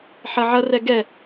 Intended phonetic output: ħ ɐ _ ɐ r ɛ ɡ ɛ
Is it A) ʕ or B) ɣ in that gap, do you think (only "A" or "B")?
A